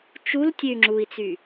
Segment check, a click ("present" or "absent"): present